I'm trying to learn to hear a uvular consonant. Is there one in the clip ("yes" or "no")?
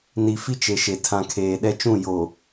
no